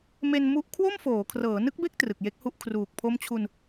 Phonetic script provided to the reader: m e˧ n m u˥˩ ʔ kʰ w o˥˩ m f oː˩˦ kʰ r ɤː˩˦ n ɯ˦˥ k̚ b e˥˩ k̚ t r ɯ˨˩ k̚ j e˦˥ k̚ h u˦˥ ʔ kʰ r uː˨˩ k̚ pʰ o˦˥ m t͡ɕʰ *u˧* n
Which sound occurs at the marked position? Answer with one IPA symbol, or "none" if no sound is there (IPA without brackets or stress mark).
u˧